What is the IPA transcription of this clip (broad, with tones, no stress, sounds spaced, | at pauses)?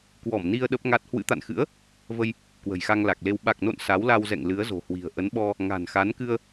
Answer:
k w ɔ˧˩ m n i˧ ə̯ ɗ ə˦˥ p̚ ŋ a˦˥ t̚ h w ɨ̰˧˥ t̪ a̰˧˨ n x ɨ̰˧˥ ə̯ | v ə˧ j | k w ə̤˨˩ j x a˧ ŋ l a˨˩ k̚ l e˧ w ɓ a˨˩ k̚ n o̰˧˨ n s a˨˦ w l a˧ w z ɛ̰˧˨ ŋ l ɨ˨˦ ə̯ z o̤˨˩ h w i̤˨˩ ə̯ ʔ ə˨˦ n ɓ ɔ˧ | ŋ a̤˨˩ n x a˨˦ n k ɨ˧ ə̯